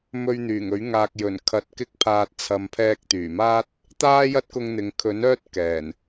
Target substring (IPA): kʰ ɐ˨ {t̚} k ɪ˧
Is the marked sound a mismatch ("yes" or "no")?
no